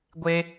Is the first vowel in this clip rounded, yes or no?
no